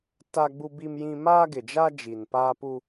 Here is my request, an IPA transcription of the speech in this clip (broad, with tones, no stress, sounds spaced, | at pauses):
t a˦ ɡ͡b u˦ b i˦ m j ĩ˦ m aː˦ ɡ ɪ˨ d͡ʒ a˦ d͡ʒ i˨ n p aː˦ p u˦